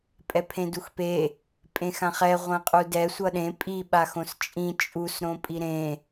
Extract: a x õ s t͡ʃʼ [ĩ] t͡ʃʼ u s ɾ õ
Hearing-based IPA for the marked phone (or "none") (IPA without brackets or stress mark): ĩ